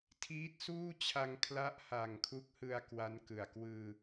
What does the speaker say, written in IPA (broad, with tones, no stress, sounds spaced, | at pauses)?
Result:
tʰ iː˦˥ t̚ s uː˥˩ t͡ɕʰ a˧ ŋ kʰ l a˦˥ ʔ h a˨˩ ŋ kʰ u˦˥ k̚ h ɯ˧ a̯ k w a˦˥ n k ɯ˨˩ a̯ k w ɯː˧